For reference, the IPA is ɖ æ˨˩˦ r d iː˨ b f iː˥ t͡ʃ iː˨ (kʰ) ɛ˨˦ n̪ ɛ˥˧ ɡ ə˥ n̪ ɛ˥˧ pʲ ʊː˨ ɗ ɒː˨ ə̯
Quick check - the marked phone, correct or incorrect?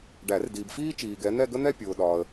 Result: incorrect